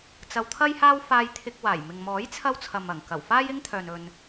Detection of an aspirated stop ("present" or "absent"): present